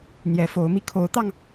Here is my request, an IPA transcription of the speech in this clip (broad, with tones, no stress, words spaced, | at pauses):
n̪jɛ˨˦fo˨˦ʊ̯mi˧ kʰo˨˦ʊ̯t̪ɑ˧ŋ